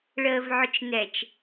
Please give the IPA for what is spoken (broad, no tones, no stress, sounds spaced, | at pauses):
ɭ əː v ʕ ʊ t͡ʃ n ɛ t͡ʃ